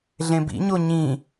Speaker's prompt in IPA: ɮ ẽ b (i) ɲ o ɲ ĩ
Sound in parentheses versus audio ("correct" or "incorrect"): incorrect